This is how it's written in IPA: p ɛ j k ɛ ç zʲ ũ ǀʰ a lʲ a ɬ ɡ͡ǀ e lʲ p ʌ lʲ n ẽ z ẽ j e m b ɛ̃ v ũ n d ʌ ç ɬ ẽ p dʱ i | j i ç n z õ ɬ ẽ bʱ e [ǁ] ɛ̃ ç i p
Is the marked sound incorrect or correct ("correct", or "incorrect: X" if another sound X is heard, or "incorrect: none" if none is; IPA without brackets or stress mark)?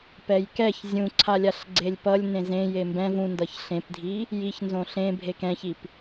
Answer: incorrect: k